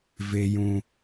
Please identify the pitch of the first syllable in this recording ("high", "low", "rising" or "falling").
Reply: high